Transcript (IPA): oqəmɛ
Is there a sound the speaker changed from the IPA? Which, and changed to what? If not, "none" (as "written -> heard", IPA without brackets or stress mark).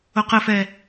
m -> f